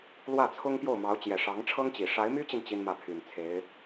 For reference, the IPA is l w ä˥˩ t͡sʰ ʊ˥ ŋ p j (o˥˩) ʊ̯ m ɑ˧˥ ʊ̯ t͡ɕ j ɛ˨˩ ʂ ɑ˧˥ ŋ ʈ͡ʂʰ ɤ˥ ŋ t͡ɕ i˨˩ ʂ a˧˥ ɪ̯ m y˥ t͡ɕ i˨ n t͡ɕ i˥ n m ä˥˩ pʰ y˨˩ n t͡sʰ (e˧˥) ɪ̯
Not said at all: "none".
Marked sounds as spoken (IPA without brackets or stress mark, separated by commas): o˥˩, e˧˥